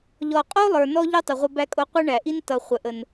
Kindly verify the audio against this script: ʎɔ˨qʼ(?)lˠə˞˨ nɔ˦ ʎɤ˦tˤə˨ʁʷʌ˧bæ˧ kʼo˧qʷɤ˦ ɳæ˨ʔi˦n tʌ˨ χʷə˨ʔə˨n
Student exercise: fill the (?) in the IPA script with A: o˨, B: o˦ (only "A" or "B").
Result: B